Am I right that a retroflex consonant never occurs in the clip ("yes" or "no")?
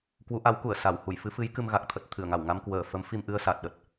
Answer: yes